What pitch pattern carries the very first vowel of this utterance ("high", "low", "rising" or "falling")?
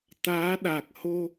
rising